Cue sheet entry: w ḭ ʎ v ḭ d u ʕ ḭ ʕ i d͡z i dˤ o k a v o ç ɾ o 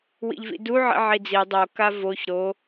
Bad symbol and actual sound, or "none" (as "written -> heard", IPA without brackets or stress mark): none